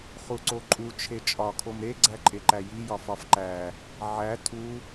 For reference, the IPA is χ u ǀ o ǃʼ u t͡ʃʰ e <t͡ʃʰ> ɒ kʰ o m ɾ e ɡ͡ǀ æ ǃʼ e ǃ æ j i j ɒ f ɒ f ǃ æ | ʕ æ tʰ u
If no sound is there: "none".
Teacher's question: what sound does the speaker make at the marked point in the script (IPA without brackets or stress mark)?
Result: t͡ʃʼ